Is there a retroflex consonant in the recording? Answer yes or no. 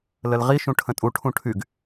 yes